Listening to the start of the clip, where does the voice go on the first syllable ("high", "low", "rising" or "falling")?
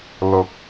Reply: rising